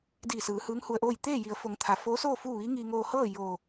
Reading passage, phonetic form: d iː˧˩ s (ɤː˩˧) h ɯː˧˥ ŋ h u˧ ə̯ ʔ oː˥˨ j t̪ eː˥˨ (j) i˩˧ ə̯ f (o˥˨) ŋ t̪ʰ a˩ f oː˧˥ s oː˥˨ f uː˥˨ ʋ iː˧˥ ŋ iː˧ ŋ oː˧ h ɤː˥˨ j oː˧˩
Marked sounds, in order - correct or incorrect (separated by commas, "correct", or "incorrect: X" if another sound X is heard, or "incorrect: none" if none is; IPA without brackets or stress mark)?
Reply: incorrect: ɯː˩˧, correct, incorrect: o˩˧